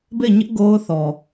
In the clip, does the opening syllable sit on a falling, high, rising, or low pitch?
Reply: falling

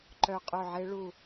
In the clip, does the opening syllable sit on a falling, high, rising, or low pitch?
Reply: falling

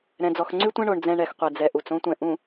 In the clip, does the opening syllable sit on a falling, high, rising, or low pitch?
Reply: low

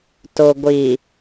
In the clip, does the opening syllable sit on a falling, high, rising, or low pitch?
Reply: low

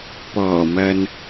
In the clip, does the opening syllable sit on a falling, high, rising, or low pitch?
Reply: low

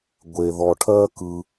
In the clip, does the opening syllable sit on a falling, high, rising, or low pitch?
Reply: low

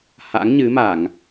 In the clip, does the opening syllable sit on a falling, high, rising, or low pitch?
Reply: rising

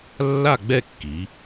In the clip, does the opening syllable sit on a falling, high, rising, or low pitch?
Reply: falling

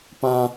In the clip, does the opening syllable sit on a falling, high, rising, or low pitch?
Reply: high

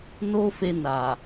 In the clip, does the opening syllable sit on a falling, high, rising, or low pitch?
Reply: high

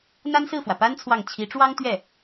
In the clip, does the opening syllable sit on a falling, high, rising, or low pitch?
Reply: high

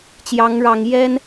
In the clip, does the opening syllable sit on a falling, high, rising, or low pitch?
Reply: rising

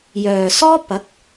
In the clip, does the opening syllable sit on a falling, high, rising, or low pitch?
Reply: low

